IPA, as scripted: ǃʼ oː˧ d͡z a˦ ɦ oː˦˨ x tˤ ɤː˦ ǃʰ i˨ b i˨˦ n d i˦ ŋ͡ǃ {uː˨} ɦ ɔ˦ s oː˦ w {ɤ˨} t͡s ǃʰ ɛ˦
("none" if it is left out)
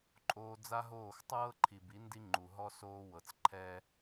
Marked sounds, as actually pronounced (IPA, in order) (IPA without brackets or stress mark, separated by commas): u˨, ɤ˨